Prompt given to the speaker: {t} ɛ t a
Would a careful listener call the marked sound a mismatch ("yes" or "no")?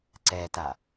yes